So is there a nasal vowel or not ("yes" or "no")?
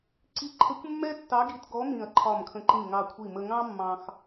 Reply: yes